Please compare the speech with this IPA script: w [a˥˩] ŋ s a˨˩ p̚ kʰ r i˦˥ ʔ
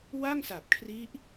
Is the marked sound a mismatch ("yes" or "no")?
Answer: no